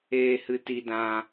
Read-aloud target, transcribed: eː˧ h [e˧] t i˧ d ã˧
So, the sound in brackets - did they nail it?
no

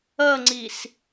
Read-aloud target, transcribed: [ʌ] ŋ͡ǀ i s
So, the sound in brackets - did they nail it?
yes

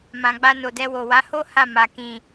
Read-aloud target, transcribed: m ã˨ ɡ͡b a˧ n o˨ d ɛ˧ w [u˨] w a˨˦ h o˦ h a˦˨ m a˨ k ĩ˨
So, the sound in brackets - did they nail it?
no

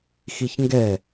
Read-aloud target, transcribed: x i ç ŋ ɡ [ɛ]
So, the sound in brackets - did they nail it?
yes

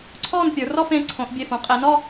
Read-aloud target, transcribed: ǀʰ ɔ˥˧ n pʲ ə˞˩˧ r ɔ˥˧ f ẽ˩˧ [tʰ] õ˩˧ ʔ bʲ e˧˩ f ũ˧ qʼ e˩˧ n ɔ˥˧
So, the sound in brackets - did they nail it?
no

